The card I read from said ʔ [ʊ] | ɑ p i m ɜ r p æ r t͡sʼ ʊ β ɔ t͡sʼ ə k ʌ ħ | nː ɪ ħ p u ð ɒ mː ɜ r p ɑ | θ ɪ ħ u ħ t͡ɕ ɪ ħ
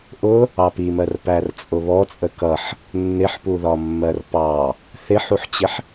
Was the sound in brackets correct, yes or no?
yes